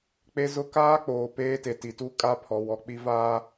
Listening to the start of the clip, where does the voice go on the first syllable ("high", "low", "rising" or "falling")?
high